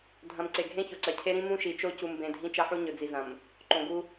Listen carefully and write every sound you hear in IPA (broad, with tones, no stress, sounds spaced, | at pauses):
dʱ ɐ̃˨ m ǀ e˨ ɡʱ ẽ˦ ç o˨ ǀ ɐ˨ cʰ e˦ ɾ ĩ˦ m ũ˦ ʃ i˨ t͡ʃ o˦ c u˨ m b ẽ˨ dʱ ĩ˦ t͡ʃ ɐ˦ ħ u˦ ɲ ɵ˨ d͡z i˨ z ɐ̃˨ m | ǃ õ˨ ɡ u˦